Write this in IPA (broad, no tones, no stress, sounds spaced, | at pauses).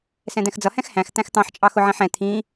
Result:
s ɛ̃ d̪ ɛ̃ x d͡z ʌ h ɛ̃ x h æ̃ x t̪ æ̃ x t̪ ɑ̃ ħ t͡ʃʼ ɑ x ʊ ʕ ɛ̃ ħ ɛ̃ t̪ʰ ĩ